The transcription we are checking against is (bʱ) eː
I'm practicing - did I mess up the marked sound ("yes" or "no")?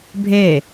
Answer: no